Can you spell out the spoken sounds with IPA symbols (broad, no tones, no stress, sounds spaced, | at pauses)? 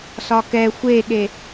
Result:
s ɒ k ɛ xʷ e ɠ e